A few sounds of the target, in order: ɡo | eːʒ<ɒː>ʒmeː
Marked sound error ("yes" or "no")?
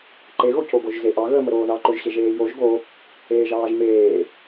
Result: yes